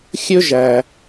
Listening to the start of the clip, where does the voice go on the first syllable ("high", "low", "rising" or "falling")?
high